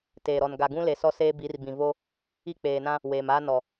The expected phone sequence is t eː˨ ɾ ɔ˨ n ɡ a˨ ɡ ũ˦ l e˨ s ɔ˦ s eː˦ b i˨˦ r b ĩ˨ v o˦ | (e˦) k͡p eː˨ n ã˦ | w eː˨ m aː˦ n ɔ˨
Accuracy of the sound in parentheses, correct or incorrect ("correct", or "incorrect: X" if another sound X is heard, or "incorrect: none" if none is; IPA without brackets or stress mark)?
incorrect: i˦